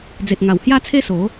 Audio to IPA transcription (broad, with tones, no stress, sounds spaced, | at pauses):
d͡z e˨ t̚ ŋ a˨˩ w h j a˦ t͡sʰ e˦ s o˨˦